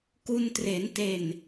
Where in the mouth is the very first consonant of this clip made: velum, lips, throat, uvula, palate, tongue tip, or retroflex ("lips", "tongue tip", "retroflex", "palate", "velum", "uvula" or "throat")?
velum